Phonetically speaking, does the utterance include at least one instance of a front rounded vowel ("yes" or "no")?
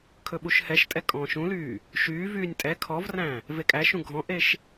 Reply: yes